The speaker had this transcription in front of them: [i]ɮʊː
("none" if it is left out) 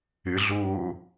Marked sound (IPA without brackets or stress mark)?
ɪ